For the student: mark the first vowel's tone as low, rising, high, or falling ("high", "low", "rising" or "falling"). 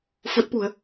rising